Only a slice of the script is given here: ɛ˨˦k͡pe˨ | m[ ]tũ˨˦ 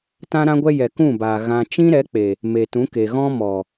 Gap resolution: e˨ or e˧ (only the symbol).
e˨